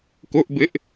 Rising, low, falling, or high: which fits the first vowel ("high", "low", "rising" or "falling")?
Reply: high